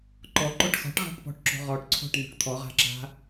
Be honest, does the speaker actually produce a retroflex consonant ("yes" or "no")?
yes